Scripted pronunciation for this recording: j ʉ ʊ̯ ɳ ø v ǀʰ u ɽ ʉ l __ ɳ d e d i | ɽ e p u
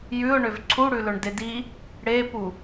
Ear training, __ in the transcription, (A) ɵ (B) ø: A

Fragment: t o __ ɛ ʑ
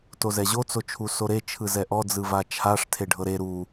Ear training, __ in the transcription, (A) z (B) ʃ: A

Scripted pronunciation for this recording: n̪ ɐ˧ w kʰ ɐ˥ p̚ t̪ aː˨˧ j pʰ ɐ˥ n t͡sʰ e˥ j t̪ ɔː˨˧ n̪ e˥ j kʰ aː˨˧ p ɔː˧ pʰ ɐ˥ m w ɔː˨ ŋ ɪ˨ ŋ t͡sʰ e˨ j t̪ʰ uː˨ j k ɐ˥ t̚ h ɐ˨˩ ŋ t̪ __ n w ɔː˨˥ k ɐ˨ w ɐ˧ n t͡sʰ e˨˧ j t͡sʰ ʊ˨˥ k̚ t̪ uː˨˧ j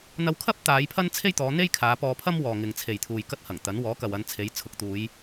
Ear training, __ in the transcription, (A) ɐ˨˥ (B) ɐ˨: A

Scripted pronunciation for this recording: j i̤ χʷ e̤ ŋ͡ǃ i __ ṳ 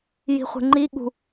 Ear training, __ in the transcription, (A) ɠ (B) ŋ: A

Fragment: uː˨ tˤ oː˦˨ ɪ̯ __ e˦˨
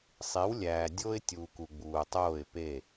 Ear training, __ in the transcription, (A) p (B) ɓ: A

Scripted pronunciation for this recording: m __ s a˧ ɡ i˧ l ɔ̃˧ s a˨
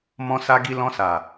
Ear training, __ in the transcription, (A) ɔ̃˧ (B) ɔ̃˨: A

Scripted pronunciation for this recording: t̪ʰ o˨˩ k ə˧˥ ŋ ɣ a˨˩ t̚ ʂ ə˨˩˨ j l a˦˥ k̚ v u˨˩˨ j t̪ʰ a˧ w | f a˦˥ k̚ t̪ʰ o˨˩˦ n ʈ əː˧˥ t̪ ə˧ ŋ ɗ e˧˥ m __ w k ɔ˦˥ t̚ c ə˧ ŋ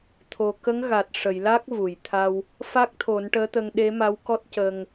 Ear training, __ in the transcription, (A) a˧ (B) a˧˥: B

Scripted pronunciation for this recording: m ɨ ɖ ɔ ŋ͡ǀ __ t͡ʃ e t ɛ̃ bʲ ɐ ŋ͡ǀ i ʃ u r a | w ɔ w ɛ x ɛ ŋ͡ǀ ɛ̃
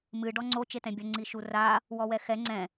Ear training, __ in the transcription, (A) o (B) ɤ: A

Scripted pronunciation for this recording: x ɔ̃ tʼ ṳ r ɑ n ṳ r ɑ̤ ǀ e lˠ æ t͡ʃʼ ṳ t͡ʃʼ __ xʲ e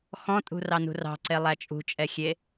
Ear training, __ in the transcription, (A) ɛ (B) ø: A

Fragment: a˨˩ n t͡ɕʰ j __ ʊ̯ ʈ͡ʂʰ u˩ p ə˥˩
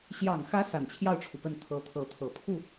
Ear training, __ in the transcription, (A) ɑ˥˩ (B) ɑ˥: A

